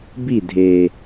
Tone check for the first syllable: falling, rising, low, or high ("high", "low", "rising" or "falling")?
falling